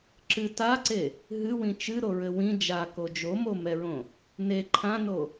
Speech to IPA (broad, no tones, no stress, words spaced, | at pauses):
ǁɨ taǀe | ɦɨwĩ t͡ʃɨɾoɹɘ wĩ d͡ʒako d͡ʒomomɛɹõ | ne ǃʰãno